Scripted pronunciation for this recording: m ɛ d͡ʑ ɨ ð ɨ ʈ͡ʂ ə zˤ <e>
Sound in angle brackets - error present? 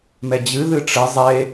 no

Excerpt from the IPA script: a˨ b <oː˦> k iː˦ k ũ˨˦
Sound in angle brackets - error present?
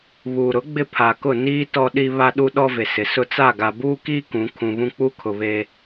yes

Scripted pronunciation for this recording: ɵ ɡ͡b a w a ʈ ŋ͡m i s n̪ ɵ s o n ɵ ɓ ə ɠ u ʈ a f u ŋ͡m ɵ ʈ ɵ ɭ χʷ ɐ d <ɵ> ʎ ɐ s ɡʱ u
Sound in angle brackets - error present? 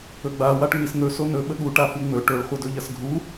no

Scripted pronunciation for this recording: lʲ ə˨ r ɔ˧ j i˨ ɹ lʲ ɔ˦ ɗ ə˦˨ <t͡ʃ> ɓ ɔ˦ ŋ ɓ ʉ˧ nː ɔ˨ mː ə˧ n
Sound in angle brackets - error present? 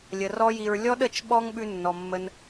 no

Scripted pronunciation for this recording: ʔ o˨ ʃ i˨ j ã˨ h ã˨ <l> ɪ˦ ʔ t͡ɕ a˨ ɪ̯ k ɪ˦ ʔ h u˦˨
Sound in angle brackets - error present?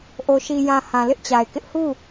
no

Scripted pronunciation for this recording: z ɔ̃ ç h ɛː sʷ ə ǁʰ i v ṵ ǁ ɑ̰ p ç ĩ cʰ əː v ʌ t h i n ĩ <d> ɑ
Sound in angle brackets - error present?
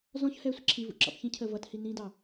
no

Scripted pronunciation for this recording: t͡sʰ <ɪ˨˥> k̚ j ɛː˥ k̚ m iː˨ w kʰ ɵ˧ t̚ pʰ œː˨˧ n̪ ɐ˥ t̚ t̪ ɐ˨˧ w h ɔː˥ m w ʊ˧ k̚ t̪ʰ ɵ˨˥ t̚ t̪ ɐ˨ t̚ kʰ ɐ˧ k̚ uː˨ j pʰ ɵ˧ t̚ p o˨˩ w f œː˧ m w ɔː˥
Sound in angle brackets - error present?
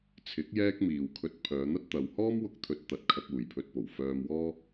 no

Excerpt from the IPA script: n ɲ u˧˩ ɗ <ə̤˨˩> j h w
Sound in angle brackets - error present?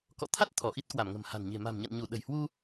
no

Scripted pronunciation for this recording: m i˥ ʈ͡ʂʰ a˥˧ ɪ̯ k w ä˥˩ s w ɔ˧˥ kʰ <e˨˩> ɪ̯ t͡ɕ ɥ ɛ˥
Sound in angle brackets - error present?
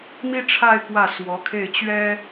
yes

